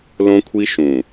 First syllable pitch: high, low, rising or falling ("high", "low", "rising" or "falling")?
high